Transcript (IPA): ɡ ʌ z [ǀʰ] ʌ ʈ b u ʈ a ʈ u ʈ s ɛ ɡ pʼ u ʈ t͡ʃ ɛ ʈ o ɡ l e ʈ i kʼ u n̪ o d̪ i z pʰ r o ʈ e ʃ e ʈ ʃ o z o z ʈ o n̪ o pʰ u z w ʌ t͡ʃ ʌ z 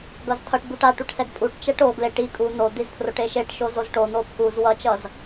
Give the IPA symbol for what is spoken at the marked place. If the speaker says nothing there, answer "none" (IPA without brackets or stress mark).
tʰ